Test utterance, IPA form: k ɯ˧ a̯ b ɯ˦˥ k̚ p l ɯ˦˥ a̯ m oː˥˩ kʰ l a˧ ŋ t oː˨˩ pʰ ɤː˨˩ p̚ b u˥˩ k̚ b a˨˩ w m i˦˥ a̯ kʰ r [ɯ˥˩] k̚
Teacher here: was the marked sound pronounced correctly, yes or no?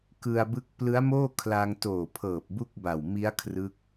no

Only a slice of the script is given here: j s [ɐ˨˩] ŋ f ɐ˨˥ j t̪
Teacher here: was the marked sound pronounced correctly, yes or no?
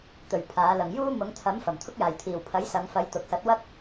no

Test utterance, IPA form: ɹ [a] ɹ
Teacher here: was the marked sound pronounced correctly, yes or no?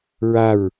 yes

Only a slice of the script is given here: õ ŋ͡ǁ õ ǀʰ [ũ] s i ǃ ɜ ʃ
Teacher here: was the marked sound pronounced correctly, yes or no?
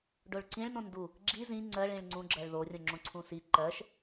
yes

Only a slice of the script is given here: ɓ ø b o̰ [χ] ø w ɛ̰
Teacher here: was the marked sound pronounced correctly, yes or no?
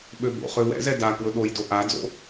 yes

